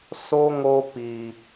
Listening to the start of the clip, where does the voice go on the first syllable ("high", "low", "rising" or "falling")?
high